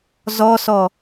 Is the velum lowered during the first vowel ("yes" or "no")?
no